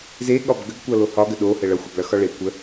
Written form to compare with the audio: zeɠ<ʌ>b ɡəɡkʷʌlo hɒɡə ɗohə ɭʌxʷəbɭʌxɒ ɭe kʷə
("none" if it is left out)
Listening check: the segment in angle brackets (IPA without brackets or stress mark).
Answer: ɒ